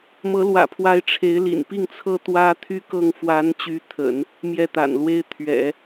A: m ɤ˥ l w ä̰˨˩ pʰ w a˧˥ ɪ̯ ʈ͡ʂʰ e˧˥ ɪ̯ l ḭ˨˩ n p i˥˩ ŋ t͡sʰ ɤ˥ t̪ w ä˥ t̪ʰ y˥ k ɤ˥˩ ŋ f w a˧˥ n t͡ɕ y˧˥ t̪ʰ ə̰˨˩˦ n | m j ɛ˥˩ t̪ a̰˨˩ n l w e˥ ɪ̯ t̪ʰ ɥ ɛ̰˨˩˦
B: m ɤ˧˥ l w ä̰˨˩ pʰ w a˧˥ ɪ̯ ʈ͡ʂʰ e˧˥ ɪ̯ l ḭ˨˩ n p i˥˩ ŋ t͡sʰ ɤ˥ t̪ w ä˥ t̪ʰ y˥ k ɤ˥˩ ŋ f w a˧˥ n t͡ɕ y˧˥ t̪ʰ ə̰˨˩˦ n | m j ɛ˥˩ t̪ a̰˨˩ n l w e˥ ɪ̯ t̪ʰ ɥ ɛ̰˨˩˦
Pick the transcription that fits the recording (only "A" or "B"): B